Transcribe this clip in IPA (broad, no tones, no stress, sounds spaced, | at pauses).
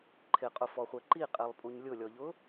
ǃʰ ɪ qʼ ʊ f ɔ χʷ ɛ ǃ i qʼ ɛ lˠ pʼ u ɲ lʲ ʊ lʲ ɔ ʎ ʊ